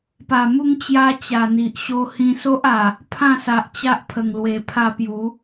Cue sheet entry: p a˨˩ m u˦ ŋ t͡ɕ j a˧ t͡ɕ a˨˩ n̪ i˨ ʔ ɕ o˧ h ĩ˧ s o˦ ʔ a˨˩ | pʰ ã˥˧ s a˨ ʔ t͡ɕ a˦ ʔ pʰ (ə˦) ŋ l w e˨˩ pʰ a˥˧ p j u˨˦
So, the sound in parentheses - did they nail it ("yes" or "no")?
no